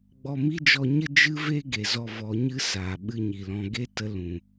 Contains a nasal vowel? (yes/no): yes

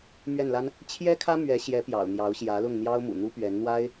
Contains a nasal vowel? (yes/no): no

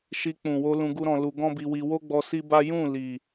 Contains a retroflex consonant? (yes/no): no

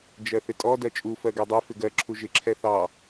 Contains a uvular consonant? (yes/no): no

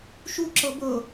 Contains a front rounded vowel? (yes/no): no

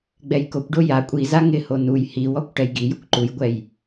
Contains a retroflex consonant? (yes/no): yes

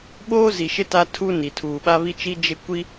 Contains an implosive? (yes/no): yes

